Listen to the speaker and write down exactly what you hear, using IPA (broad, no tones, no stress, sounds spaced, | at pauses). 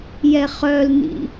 j ɛ χ œ l n ḭ